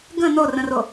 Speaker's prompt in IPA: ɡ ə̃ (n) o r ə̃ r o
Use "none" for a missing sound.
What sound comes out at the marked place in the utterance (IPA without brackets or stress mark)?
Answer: n